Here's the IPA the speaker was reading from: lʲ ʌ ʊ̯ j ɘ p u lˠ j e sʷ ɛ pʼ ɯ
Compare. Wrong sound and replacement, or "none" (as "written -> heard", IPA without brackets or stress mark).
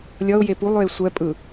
ɘ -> e